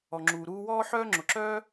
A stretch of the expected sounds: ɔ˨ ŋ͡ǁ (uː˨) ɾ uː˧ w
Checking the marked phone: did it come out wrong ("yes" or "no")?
no